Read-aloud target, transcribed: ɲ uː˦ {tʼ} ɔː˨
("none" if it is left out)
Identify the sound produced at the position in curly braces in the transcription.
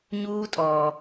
tʼ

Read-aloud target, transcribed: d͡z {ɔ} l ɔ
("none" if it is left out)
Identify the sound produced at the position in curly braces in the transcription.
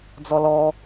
ɔ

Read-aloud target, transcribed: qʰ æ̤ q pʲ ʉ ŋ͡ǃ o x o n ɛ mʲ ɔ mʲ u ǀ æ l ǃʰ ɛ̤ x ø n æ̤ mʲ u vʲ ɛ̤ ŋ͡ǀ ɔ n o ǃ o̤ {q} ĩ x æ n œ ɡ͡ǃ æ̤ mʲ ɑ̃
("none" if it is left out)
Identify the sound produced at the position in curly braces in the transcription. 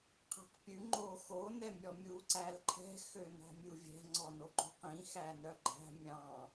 q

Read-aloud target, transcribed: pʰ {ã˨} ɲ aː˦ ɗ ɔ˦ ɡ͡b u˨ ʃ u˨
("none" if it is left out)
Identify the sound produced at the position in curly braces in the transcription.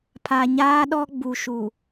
a˨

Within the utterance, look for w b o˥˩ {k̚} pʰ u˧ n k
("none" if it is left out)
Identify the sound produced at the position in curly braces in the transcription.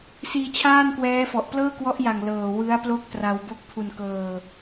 k̚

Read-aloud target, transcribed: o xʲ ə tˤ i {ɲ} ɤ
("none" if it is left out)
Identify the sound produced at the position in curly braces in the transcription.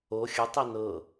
n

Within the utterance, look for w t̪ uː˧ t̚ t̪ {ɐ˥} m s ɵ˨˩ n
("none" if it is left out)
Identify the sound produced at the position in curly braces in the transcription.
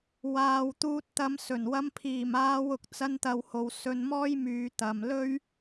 ɐ˨˧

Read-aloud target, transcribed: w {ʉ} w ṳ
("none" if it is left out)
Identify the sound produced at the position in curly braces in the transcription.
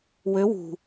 ø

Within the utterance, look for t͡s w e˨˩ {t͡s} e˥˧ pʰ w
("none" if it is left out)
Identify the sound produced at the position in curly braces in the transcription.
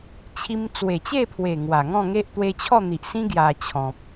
t͡ɕ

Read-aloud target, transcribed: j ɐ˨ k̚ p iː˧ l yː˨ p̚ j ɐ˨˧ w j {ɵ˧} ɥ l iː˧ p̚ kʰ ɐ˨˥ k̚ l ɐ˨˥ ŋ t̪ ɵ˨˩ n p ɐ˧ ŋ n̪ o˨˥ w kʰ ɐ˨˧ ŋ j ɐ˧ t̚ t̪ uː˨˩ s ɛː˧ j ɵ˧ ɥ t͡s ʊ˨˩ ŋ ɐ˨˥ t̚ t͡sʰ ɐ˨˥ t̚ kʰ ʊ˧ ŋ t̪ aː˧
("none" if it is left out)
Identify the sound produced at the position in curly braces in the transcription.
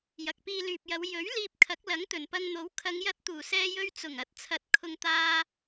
ɵ˨˥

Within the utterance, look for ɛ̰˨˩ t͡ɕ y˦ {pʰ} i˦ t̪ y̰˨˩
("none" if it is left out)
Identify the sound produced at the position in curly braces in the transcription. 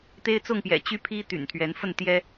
pʰ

